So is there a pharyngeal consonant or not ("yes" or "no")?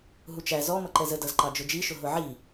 yes